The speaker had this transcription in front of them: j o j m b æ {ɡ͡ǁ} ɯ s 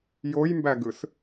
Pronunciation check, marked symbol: incorrect: ɡ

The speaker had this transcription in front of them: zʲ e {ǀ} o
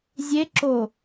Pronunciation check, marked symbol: incorrect: ǁ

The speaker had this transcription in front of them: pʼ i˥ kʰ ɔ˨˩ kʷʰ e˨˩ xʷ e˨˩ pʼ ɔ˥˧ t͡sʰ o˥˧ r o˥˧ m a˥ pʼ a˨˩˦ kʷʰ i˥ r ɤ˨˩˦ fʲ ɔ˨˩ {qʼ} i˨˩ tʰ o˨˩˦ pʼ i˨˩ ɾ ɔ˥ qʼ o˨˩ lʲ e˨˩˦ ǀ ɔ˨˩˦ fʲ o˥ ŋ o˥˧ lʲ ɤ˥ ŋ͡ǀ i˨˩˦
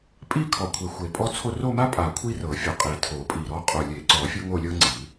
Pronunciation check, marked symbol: correct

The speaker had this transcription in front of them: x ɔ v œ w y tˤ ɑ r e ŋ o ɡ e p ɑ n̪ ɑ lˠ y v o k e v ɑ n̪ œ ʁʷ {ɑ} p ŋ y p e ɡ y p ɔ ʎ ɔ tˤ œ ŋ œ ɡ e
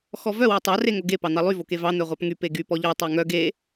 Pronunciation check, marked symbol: correct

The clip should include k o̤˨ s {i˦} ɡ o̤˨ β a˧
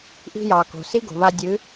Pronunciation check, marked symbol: correct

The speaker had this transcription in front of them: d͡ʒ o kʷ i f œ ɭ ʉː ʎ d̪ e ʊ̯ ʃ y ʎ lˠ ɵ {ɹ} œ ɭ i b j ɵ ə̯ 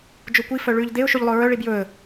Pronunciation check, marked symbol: correct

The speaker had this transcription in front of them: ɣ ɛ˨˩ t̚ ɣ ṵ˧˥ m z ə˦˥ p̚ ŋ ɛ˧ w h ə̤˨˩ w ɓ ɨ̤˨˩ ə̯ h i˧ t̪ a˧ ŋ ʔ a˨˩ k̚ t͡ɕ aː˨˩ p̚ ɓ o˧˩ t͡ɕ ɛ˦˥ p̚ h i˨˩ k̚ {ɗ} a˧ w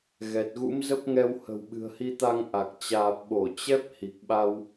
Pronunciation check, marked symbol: incorrect: ɓ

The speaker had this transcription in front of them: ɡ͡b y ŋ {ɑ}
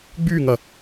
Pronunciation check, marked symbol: incorrect: ɐ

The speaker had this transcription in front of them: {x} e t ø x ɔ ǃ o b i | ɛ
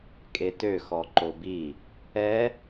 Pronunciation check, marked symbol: incorrect: kʼ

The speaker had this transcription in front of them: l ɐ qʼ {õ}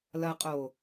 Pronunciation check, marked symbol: incorrect: o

